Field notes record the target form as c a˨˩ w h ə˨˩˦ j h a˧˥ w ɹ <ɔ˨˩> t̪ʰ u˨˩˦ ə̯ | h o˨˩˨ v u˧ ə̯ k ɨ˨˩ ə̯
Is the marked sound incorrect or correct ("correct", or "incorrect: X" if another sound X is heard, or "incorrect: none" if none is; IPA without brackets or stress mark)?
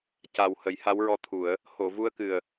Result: incorrect: ɔ˧˥